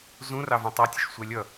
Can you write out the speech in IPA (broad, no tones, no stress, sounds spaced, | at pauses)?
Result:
z ũ r ɑ v ũ tˤ ɑ tʲ ə ʃ sʷ ɛ lʲ ʌ